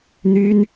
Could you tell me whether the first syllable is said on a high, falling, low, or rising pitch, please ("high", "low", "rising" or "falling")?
high